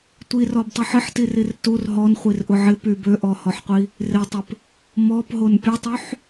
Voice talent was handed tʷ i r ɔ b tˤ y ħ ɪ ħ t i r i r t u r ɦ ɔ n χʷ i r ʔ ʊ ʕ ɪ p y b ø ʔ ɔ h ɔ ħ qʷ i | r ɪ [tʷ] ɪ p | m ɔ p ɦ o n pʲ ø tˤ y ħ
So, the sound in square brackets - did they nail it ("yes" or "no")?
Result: no